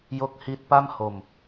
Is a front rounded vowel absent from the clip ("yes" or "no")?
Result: yes